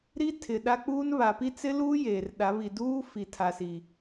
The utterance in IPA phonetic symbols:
ɾ i˦ tʰ ɪ˨ ɗ a˦ k͡p uː˦ n β a˨ p i˦ t͡s ɪ˦ l uː˦ j eː˨ r ɗ a˨˦ β i˨ d uː˦ f i˨ tʰ a˨ s i˨

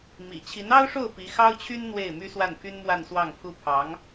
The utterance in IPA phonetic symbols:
m ḭ˨˩ t͡ɕʰ i˧˥ n ɑ˥ ʊ̯ ʂ o˥˩ ʊ̯ p i˧˥ x ɑ˥ ʊ̯ t͡ɕʰ y˥ n n̪ w e˥˩ ɪ̯ m y˥ s w a˥˩ n pʰ y˥ n m w a˥˧ n s w ɑ˥˩ ŋ pʰ u˥ pʰ ɑ˧˥ ŋ

